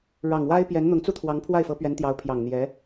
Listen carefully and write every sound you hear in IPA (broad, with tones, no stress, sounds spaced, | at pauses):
ɻ ɑ˨˩ ŋ w a˥ ɪ̯ p j ɛ˧˥ n n̪ ʊ˧˥ ŋ t͡s u˥ t̪ʰ w ɑ˧˥ ŋ pʰ w a˥˩ ɪ̯ f ɤ˧˥ p ɥ ɛ˧˥ n t̪ j ɑ˧˥ ʊ̯ pʰ j ɑ˨˩ ŋ n̪ j ɛ˧˥